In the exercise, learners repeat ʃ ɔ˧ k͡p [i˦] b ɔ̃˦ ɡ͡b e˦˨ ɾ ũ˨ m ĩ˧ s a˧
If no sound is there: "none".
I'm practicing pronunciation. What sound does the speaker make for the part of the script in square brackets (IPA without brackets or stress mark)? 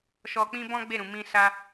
ĩ˦